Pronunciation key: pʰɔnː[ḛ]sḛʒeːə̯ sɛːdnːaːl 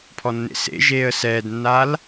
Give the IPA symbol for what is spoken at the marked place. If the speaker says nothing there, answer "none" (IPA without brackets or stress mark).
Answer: ḛ